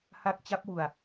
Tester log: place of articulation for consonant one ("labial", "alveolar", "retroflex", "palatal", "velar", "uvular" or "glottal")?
glottal